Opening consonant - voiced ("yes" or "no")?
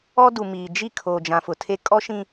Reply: yes